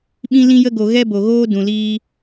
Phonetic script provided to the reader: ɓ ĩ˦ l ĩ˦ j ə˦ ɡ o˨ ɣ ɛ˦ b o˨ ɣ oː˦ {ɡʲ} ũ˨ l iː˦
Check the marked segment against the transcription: incorrect: d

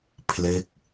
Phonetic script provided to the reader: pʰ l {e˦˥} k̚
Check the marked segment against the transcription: correct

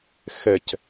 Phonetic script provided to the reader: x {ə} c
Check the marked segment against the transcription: incorrect: ɛ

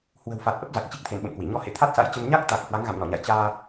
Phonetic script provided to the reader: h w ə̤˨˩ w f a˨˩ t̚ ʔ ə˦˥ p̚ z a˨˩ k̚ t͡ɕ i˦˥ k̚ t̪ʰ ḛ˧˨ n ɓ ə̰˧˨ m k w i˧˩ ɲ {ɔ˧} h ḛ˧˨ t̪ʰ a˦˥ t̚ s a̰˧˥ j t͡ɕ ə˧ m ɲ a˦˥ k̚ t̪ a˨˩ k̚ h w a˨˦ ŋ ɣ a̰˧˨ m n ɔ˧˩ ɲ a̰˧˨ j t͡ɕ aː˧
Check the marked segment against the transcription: correct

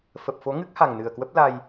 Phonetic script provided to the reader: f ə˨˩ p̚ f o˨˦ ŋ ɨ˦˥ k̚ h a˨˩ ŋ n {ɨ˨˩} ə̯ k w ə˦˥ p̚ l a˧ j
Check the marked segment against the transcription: correct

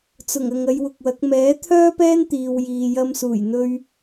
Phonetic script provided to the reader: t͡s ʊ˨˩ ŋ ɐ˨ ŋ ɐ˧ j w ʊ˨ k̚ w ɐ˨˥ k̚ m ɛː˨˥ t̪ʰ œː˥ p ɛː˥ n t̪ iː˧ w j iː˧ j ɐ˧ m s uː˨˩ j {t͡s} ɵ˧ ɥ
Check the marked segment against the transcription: incorrect: n̪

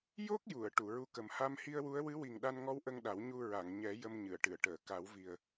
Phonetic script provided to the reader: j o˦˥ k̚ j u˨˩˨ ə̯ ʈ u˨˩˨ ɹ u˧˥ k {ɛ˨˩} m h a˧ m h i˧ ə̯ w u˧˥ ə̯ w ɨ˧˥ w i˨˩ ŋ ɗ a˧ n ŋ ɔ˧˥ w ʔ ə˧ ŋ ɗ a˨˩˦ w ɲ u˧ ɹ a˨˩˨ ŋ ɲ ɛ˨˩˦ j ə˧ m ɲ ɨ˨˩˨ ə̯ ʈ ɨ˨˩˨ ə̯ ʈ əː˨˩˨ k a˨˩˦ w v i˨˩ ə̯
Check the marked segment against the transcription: incorrect: ə˨˩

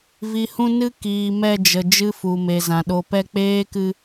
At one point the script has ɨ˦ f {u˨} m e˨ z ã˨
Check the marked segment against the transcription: correct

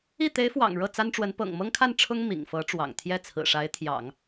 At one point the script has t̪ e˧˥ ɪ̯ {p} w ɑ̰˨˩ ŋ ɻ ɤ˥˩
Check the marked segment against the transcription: incorrect: f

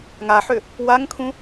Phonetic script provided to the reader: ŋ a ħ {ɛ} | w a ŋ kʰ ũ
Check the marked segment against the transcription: incorrect: ʏ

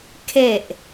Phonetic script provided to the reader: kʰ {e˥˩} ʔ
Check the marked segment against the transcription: incorrect: e˨˩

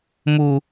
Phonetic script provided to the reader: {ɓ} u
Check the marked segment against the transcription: incorrect: m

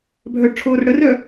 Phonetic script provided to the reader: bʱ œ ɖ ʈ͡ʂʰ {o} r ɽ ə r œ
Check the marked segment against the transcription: incorrect: oː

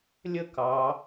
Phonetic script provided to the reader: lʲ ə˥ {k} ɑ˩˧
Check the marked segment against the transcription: correct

